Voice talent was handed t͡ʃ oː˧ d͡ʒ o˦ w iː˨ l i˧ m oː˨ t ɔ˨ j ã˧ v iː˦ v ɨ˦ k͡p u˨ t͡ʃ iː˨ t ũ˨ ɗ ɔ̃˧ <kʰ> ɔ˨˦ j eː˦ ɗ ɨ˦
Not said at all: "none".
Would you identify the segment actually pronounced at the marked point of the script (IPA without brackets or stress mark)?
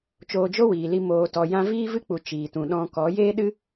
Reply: k